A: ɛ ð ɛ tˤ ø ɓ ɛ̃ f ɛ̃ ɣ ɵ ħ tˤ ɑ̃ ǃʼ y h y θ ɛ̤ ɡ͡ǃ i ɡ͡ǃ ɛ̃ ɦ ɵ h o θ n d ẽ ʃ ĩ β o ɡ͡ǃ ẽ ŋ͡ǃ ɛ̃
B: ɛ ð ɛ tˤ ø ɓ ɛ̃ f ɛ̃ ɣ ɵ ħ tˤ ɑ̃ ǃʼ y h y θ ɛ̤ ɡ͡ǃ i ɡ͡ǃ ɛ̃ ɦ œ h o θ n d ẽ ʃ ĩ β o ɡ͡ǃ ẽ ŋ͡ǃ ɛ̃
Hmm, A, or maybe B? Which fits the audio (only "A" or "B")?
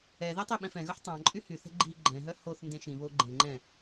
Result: B